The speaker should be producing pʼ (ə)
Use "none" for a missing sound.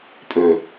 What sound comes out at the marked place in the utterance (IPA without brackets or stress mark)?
ø